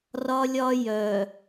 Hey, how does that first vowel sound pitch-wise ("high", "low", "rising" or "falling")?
high